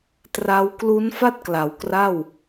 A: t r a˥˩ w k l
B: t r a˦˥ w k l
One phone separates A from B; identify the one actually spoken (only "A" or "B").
B